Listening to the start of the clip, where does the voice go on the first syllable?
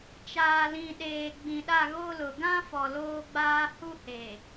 low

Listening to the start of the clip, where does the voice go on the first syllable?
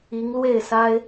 rising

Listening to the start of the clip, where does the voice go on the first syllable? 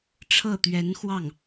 falling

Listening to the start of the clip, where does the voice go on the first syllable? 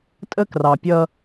high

